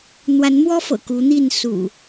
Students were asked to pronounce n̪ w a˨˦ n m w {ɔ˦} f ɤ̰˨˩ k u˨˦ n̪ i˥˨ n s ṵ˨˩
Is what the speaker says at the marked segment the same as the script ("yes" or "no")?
yes